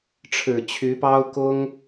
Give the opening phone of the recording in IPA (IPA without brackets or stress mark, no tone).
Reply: ʈ͡ʂʰ